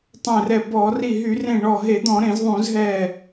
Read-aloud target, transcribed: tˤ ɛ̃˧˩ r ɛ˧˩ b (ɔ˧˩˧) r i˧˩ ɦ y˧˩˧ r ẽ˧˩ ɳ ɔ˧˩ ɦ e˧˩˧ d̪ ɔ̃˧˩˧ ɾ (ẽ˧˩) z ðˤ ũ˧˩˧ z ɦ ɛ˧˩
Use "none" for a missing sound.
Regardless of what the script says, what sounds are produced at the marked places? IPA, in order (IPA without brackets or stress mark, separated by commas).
ɔ˧˩˧, ẽ˧˩˧